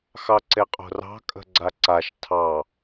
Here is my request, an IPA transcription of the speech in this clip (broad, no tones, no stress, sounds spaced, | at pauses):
x ɑ ǀ e qʼ o̤ r ɑ̤ kʼ ə̤ ɡ͡ǀ a ǀ a ʃ tʰ ɑ